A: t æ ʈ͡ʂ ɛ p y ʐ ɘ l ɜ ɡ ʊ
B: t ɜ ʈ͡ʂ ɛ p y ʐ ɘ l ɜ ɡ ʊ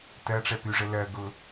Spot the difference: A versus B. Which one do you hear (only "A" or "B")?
B